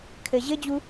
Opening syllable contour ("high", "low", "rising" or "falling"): low